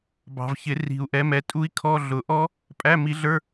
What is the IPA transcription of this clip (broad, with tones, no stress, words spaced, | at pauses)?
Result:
bɑ̤˨vçɪ˨˩˦ ri̤˨˩˦u̯ʔɛ˨˥mɛ˨˥ tʼu˦˥i̯kʰɔ˧˥˧ ɮʊ˨˩˦ʔɔ˦˥ | pʼæ˧˥˧mi˨˥ɮə˞˧˥˧